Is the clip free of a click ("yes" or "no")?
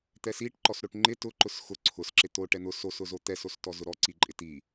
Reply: no